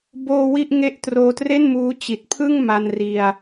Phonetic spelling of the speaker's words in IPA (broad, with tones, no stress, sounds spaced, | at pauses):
b oː˧ w i˥˩ ʔ ŋ e˥˩ ʔ t r oː˧ t r e˥˩ n m uː˦˥ t͡ɕ i˨˩ t̚ pʰ ɯ˥˩ ŋ m a˧ n r i˧ a̯